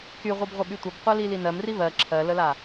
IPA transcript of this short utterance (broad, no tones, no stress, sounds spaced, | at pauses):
k y ʁʷ ɨ b ʁʷ ə ɓ y tʷ ə b qʷ ɜ l i l i n ɜ m r i β ɜ ǁʰ ɜ l ə l a